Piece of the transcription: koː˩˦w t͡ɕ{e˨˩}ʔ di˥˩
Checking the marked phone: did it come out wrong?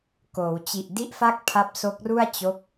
yes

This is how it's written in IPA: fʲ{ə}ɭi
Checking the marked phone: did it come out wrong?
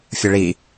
no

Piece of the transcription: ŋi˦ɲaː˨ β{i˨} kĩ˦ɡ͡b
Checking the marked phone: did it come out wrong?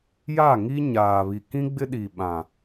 no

